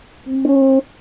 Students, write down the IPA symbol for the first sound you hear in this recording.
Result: ɡ͡b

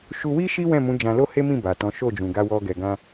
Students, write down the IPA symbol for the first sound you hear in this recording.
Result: ʃ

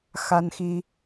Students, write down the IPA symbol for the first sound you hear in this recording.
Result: x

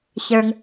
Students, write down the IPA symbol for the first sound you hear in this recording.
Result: ç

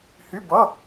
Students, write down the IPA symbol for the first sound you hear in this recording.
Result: h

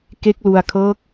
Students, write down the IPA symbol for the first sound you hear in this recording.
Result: k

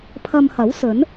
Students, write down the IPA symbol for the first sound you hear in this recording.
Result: pʰ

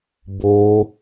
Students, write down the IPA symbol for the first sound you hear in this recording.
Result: b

